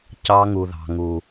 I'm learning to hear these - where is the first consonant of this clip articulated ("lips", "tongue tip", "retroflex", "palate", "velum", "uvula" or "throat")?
palate